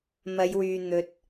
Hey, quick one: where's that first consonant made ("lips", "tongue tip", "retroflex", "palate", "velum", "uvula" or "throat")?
lips